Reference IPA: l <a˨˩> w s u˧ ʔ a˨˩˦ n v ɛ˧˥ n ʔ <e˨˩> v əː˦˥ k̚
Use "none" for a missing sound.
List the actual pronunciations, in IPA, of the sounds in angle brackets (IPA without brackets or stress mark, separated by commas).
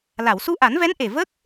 a˨˩˨, e˨˩